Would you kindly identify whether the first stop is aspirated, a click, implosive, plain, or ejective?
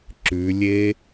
click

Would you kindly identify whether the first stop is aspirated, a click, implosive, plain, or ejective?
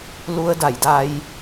plain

